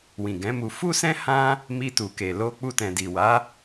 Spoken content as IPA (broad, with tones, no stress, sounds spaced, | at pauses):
w ĩ˨ ɡ ɛ̃˨˦ m u˧ f u˦ s ɛ̃˦ h ã˦ | m i˧ t u˨ k e˨ l o˧ k͡p u˧ t ɛ̃˨ d i˨ w a˨˦